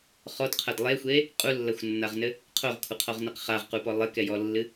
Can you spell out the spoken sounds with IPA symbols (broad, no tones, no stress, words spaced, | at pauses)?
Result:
χɔdqʰɐd lˠexʷe | qʼulːɐxʷnːaʁnɘ | qʰoʁkʷʰɐqʰɔʁnɘq χaʁqupɔ lˠɘkɛjɔlːɨ